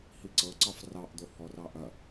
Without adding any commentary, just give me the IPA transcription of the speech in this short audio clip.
h i ǀ ɤ ǀ ɑ f r ɑ ʔ d̪ o h ɔ r ɑ ʔ ɐ

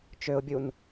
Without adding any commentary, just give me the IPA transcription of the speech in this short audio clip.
t͡ʃ ø ʊ̯ bʲ u n

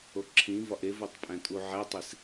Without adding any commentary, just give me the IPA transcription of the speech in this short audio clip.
o ǁʰ ĩ v ɒ ʔ e v o tˤ pʼ æ̃ tʼ u ʕ æ tˤ i s

